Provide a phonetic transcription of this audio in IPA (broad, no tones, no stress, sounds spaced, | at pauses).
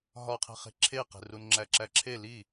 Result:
ɦ ɒ qʰ e̤ χ e̤ ǁʰ e q e̤ r u n ŋ͡ǁ æ ǁ æ ǁʰ e l iː